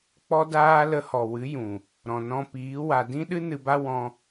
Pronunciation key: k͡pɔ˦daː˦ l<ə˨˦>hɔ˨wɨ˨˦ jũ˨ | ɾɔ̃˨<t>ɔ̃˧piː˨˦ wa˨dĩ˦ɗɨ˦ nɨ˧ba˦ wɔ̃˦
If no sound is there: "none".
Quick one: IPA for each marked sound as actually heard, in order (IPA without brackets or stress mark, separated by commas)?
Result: ə˧, n